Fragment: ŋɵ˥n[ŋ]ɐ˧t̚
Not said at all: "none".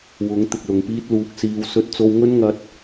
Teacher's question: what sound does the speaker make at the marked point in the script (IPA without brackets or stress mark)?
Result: ŋ